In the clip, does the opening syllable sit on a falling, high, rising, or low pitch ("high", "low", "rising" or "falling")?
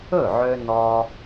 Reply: falling